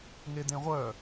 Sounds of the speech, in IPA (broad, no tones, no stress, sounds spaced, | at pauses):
ŋ e d̪ ẽ ʁʷ œ